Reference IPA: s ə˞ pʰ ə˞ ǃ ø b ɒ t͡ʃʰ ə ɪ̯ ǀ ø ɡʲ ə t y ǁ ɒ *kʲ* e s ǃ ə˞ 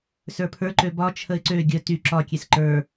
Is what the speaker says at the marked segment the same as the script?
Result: yes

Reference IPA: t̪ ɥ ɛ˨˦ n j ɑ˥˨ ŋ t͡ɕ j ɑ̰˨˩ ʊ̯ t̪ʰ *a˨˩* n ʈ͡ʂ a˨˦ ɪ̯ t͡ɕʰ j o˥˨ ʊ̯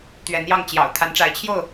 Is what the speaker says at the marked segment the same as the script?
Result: no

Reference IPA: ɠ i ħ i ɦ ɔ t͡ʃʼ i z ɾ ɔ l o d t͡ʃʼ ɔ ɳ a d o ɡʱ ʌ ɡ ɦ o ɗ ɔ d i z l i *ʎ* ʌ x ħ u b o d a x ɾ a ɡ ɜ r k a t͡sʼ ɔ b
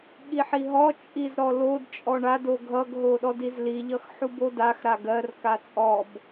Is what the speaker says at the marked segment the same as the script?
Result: yes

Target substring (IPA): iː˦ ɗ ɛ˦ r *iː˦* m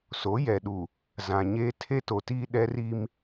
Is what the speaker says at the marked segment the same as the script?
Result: no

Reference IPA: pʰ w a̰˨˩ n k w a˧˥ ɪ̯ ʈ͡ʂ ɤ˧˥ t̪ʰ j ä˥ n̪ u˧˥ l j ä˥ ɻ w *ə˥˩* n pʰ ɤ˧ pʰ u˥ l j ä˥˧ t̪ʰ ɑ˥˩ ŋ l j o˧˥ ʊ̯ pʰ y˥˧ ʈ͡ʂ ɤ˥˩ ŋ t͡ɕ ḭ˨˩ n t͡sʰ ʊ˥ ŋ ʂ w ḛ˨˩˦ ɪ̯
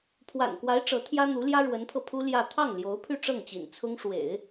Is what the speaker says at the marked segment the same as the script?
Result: no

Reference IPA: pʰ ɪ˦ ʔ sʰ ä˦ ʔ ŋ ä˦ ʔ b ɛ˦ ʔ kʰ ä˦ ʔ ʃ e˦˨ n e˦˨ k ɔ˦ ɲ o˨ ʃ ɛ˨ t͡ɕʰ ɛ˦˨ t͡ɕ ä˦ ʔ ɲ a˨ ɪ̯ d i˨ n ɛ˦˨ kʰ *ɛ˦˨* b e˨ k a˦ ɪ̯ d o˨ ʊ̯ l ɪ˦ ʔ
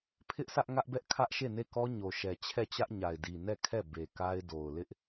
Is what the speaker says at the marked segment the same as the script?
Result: yes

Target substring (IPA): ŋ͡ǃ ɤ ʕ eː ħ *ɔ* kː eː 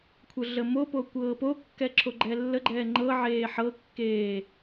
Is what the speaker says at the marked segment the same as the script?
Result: no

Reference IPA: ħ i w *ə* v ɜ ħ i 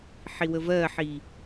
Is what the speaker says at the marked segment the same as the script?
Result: yes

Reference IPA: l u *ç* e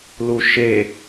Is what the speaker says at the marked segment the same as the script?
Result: no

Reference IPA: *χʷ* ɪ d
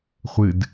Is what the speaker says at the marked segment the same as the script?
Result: yes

